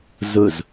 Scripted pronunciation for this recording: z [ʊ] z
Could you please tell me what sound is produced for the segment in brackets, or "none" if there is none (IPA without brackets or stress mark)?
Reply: ʊ